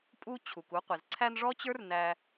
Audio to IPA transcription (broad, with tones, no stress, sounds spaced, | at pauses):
pʼ u˥ t͡ɕʰ u˩ k u˦ qʷ ɪ˩ z ǀʰ æ˦ n ʐ ɔ˥ t͡ɕ ə˞˥ r n æ˦